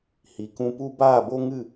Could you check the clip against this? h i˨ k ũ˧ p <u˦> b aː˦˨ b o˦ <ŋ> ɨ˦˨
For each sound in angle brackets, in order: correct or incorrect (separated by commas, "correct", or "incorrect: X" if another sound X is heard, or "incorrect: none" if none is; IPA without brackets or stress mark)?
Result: correct, correct